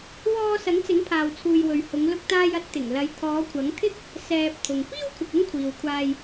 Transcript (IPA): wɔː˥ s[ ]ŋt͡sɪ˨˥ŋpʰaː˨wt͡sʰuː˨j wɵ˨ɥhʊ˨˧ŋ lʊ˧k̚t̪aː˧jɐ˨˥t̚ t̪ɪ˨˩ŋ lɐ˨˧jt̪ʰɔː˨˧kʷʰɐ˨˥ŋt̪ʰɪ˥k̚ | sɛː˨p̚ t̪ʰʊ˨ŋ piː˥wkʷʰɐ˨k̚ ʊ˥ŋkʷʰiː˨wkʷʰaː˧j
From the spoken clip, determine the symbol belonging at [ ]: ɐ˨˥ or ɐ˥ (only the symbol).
ɐ˨˥